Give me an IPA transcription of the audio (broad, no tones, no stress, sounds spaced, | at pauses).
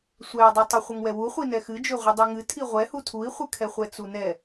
sʷ ɛ u̯ dˤ u tˤ ə χʷ ə ŋ w ɛ w u χʷ i n ɛ x ɨ d͡ʒ ø ʁʷ ɨ dˤ i ŋ ɨ tʰ i ʁʷ ɛ h u tʰ u i̯ χʷ ɨ kʰ ɛ χʷ ɛ t͡s u n ɛ